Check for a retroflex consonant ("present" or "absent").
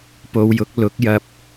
absent